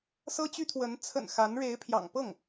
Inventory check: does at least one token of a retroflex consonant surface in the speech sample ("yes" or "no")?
yes